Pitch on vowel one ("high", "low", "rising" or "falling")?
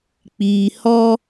low